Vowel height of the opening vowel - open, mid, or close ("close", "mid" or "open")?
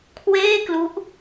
mid